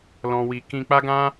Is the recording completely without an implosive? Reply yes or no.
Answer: yes